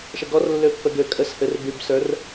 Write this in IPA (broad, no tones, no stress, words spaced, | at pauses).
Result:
ʃəɡɔrlːø pːəɡøkʼəshɘr bybsə˞r